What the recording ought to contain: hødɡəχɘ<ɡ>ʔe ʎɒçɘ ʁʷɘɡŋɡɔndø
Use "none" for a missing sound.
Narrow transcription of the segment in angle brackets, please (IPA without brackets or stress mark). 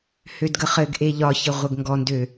ɡ